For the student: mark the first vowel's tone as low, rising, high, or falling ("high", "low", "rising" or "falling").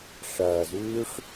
low